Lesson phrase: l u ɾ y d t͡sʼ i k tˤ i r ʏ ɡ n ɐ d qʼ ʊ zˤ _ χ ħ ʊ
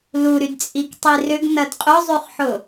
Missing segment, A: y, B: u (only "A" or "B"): A